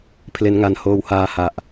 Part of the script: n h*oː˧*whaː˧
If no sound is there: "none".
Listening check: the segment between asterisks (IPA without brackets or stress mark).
oː˧